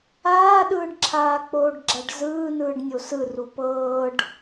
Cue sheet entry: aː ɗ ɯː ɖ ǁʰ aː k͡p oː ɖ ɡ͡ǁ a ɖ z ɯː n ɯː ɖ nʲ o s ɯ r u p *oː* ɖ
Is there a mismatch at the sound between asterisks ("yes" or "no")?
yes